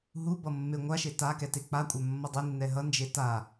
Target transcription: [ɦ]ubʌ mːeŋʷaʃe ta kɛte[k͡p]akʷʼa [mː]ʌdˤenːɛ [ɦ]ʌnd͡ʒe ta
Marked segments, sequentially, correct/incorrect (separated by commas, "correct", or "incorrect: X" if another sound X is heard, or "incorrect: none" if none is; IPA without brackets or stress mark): correct, correct, correct, correct